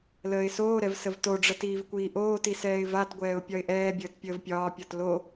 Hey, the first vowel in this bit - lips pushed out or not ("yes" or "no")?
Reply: no